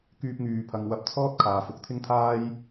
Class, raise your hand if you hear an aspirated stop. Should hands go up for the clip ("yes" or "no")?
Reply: yes